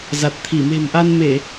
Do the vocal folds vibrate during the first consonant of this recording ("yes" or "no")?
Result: yes